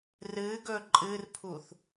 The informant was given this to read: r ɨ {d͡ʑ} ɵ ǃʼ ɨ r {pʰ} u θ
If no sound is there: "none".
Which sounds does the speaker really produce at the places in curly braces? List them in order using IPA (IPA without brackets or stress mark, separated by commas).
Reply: ɡ, pʰ